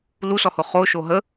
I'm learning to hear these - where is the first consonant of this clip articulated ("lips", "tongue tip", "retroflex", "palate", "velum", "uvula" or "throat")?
tongue tip